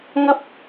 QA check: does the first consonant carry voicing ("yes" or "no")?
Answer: yes